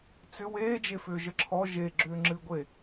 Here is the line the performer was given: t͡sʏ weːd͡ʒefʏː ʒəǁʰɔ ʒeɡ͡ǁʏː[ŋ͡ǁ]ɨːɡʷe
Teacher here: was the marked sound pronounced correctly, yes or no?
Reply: yes